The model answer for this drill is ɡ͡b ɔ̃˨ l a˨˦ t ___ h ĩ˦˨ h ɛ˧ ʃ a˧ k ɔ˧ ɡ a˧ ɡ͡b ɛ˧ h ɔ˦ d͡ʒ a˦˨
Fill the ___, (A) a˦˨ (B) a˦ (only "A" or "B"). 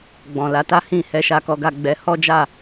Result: B